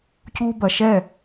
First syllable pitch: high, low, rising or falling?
high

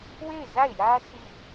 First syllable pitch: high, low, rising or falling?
falling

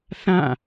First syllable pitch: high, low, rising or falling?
falling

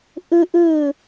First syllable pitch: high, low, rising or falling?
high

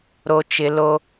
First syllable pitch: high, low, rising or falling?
high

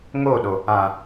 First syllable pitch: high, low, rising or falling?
falling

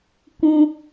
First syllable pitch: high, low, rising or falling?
high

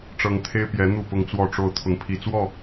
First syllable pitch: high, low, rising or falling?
high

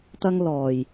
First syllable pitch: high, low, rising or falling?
high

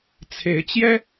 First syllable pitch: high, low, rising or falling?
rising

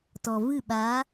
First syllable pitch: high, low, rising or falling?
low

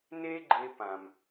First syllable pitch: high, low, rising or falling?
high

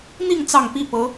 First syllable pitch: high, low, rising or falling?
falling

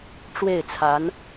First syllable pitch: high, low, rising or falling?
falling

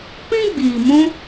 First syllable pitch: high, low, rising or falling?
high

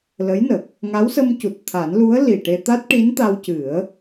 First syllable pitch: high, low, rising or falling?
rising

